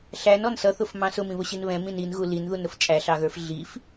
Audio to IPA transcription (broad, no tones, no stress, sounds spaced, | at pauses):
ɬ æ n ɔ n s ʌ θ ʊ f m ɑ̃ s ʊ m ĩ β ʊ ɕ i n β ɛ̃ m ĩ n i n ɣ u l i n ð u n ɾ ʊ f t͡ʃʼ æ ɬ ɑ ɣ ə˞ f ɮ i f